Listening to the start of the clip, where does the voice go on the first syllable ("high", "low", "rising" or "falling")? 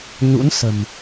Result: rising